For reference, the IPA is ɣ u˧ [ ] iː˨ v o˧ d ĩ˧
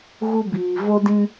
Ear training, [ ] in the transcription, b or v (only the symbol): b